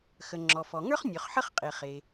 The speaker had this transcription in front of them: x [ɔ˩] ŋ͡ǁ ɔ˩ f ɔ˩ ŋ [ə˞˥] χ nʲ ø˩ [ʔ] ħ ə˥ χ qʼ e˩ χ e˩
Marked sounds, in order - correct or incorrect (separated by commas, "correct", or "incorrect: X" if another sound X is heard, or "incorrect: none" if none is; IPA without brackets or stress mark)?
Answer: incorrect: ə˩, correct, incorrect: χ